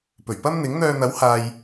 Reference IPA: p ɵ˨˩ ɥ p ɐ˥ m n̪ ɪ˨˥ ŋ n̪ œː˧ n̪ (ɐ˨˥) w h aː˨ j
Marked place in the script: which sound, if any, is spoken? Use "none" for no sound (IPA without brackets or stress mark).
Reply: ɐ˨˥